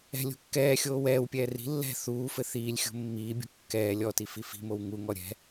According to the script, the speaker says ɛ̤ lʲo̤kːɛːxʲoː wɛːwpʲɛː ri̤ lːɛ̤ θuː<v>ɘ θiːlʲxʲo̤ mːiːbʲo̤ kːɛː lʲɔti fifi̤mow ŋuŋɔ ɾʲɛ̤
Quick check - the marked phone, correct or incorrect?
incorrect